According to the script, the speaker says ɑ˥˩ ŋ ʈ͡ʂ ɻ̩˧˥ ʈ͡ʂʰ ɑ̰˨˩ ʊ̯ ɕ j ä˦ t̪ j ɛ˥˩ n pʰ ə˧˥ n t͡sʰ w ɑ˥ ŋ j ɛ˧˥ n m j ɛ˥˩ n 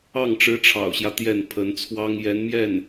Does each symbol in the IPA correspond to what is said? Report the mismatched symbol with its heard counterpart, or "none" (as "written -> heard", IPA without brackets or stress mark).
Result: none